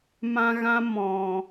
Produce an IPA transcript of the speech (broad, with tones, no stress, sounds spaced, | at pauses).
m ã˦ ɣ ã˦ m ɔ̃˨